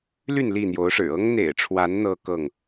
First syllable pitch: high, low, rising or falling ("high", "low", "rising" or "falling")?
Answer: falling